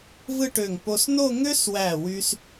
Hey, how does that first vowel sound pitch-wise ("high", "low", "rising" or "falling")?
falling